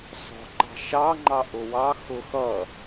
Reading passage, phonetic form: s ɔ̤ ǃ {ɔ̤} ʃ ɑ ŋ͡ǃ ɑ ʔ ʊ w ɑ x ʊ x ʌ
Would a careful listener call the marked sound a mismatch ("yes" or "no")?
yes